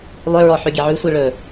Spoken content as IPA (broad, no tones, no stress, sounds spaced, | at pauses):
lˠ ʏ ɹ ɔ ħ ʉ ɡʲ ɛ ʕ ʉ sʷ i ɭ ɵ